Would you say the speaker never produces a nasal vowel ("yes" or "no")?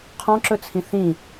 no